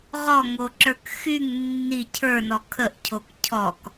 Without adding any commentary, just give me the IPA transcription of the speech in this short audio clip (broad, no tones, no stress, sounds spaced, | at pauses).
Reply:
ʁ ɔ ŋ o ǁ ə˞ k x y ŋ nː i cʰ ə˞ n ɔ kʰ ə ʔ cʰ o k cʰ ɔ k